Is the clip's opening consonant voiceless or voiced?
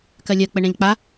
voiceless